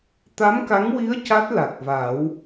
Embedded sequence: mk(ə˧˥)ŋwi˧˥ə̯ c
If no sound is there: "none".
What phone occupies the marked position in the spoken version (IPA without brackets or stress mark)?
a˧˥